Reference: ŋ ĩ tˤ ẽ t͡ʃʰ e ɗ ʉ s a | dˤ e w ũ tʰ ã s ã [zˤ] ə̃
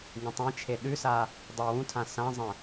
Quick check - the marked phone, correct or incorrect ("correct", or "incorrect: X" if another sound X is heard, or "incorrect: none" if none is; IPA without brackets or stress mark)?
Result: correct